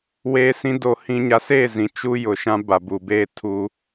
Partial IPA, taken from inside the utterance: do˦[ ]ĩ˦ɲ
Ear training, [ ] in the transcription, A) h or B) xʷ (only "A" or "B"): A